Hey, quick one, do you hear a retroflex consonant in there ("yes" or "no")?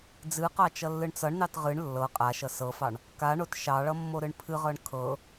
yes